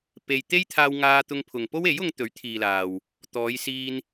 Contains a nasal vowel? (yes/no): no